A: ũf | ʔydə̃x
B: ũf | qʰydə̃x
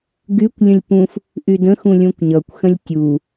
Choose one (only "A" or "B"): A